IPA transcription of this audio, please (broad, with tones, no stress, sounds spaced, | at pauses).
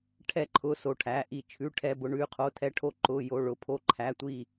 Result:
ʈʰ ɛ˥˨ ǃʰ ʊ˧˥˧ s o˥˨ ʈʰ æ˧˥˧ ʔ i˥˨ t͡ʃʰ ʉ˧˥˧ ʈʰ ɛ˧˥˧ b ʊ˧˥˧ ɳ ʉ˧˥˧ qʰ o˧˥˧ tʰ ɛ˧˥˧ ʈʰ o˥˨ ǃ ʊ˧˥˧ j o˧˥˧ ɭ ʊ˧˥˧ pʰ o˥˨ ǃʰ æ˧˥˧ tʷ i˥˨